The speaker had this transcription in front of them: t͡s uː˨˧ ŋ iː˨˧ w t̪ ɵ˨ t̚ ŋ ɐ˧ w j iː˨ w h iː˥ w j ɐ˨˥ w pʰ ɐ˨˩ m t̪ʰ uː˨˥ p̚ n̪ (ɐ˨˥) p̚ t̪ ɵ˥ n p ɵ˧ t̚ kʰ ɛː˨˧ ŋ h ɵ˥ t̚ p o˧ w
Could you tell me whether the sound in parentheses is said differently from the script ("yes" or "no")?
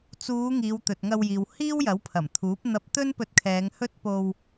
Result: yes